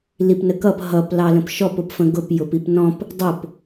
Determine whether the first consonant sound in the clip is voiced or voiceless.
voiced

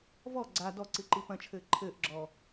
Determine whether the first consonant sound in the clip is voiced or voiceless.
voiced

